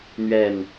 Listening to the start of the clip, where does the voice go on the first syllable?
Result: falling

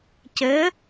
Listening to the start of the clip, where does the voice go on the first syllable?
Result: rising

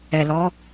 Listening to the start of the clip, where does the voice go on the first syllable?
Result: low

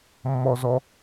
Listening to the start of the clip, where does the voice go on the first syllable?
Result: high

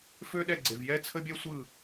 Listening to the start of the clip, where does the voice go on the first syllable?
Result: high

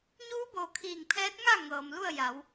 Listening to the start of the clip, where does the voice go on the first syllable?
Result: rising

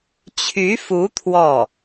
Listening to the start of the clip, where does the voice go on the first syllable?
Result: rising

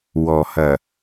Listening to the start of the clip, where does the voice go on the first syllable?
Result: low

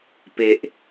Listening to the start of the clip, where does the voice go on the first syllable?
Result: low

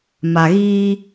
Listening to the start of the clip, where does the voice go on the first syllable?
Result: low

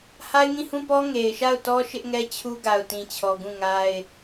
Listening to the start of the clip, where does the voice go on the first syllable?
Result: high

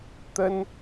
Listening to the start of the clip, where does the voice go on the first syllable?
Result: high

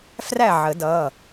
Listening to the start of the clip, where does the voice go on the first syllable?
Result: falling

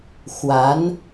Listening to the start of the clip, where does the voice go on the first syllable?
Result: rising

